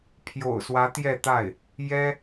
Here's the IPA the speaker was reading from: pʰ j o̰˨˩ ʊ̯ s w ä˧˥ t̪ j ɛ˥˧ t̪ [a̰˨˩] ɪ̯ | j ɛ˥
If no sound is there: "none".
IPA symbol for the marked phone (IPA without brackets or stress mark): a˥˩